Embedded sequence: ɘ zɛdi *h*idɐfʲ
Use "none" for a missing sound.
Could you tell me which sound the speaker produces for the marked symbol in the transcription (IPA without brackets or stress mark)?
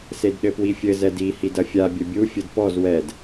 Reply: h